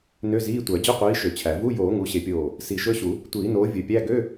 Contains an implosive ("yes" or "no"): no